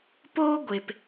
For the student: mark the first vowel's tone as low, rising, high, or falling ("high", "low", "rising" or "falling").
high